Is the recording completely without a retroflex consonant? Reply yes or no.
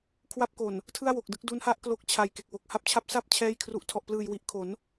yes